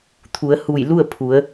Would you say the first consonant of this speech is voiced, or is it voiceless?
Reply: voiceless